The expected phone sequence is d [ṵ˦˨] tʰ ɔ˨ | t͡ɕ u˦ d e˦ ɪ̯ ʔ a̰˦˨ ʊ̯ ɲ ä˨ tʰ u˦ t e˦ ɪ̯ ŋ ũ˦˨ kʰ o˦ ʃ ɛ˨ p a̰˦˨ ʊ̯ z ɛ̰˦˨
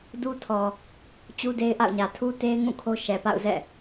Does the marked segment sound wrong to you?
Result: yes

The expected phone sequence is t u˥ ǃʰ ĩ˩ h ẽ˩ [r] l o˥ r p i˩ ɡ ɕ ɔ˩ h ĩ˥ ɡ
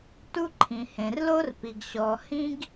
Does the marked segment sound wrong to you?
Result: no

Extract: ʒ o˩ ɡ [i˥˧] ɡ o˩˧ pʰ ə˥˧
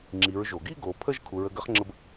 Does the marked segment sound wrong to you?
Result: no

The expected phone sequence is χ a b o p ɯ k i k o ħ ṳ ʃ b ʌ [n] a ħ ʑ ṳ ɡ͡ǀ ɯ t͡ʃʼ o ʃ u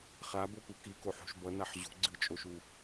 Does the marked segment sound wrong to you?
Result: no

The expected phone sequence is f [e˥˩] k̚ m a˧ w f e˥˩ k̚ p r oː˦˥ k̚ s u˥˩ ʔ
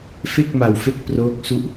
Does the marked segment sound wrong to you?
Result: no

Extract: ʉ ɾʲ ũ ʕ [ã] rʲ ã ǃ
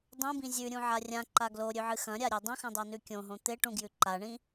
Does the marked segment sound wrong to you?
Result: yes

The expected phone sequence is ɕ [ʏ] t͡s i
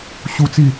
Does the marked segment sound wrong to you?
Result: yes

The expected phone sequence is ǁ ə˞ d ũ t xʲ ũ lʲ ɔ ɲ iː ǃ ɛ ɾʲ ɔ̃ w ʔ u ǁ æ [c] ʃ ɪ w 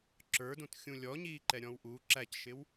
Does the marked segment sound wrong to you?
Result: no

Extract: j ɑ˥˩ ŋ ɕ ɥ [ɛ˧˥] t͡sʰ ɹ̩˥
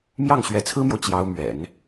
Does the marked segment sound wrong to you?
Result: no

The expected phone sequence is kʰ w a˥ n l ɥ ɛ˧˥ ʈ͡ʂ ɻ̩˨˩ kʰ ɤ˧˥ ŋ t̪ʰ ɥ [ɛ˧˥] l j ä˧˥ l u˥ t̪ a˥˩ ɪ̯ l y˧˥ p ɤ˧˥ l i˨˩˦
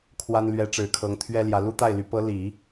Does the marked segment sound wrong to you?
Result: yes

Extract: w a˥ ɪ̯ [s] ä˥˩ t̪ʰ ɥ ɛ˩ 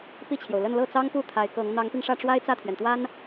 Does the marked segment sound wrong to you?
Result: yes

